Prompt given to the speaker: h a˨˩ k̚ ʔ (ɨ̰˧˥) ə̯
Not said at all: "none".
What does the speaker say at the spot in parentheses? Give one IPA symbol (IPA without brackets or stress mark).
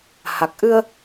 ɨ˧